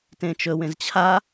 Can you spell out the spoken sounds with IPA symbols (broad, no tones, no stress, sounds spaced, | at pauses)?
t ẽ t͡ʃ ɵ w ẽ z t͡ɕʰ a